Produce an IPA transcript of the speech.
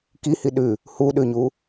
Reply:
k i h i ɗ ʉ | h u ɗ ʉ ɲ u

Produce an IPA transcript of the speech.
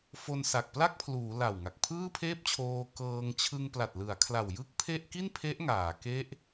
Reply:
f o˧ n s a˨˩ k̚ p l a˥˩ k̚ pʰ l uː˩˦ l a˨˩ w ŋ a˨˩ k̚ pʰ ɯː˥˩ pʰ eː˥˩ p̚ t͡ɕʰ oː˧ k ɤː˧ ŋ t͡ɕʰ ɯ˧ ŋ p l a˨˩ t̚ l ɯ˩˦ a̯ kʰ l a˨˩ w j ɯ˥˩ k̚ pʰ e˥˩ ʔ k i˥˩ n pʰ e˦˥ ʔ ŋ aː˩˦ k e˦˥ ʔ

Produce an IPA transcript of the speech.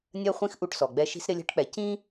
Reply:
nʲ ɜ˦ χʷ ĩ˦ x ʔ u˦ ʈ s ɔ˨ ɡ͡b ɛ˦ ʃ i̤˦ s ɾ ɪ˦ lʲ ɛ̤˦ ʈ k͡p ɛ˨ c ĩ˦

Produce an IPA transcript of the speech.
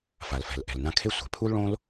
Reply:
f a˩ l f ɛ̤˩ l ʔ ɛ̤˩ l n ã˧ kʰ e˥ sʷ ɛ̤˩ pʰ u˥ l ɭ õ˥ l

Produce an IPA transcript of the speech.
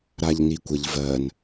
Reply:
ɾ a ʎ n i kʷ ə ʎ v ɜ n

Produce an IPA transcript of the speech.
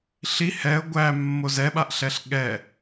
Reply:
ɬ i h ɛ ə̯ ɡʷ æ mː o z ɛ ɓ a ʔ ɬ ɛ ɬ ɠ ɛ

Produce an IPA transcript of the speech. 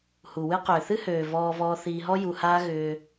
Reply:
h u˨ w ɨ˦ q ʏː˨ θ ɨ˦ h øː˨ v ɔː˧ v ɔː˧ θ iː˧ ɦ ɔ˦ j u˧ h aː˦ ɣ ʏː˧

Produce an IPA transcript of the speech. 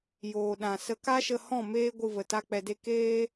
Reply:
j oː˨ ɗ ã˨ s ə˧ k a˦ ʃ ə˧ h ɔ̃˦˨ m eː˦ ɡʷ ɨ˧ v ə˨ t a˦ k͡p ɛ˧ d e˦ k eː˦

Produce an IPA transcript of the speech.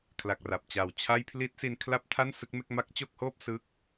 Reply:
kʰ l a˨˩ k̚ r a˨˩ p̚ t͡ɕ a˨˩ w t͡ɕʰ a˥˩ j pʰ l i˦˥ t̚ s i˧ n kʰ l a˥˩ p̚ tʰ a˥˩ n s ɯ˦˥ k̚ m e˦˥ k̚ m a˦˥ k̚ t͡ɕ o˥˩ k̚ h oː˥˩ p̚ s ɯ˥˩ k̚

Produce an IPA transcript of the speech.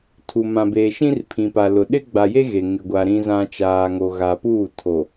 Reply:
tʰ u˨ m ã˨ b eː˨ ʃ ĩ˦ r pʰ ĩ˨ p a˨ l ʊ˨ ɗ ɪ˦ ɡ͡b a˨ j e˦ ɣ e˨ ŋ ɪ˨ ɡʷ a˨ ɾ ĩ˨ z ã˨ t͡ʃ aː˨ ŋ o˨ ɣ a˨ p uː˦˨ tʰ o˨

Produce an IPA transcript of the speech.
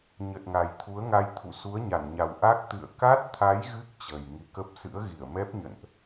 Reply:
ɲ ə˨˩ t̚ ŋ a˨˩ j t̪ʰ u˨˦ ə̯ ŋ a˧ j t̪ʰ ṵ˧˨ s u˨˦ ə̯ ɲ a˧˩ n ɲ a˨˩ w ʔ a˦˥ k̚ t̪ ɨ̰˧˨ ə̯ k a˦˥ t̚ t̪ʰ a˨˦ j ɣ ɨ˦˥ k̚ t͡ɕ əː˨˩ j ŋ i˨˦ k ə˦˥ p̚ s ɨ̰˧˥ ə̯ ɣ i˧˩ ə̯ m ɛ˦˥ p̚ ɲ ə̰˧˨ n ʔ

